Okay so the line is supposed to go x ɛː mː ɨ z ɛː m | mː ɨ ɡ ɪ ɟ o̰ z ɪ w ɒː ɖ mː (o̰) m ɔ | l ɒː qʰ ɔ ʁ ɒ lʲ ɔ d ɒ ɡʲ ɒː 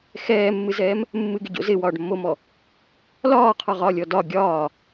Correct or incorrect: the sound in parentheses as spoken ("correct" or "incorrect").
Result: incorrect